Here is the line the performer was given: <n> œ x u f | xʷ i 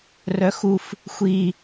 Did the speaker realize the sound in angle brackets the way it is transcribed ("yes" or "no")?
no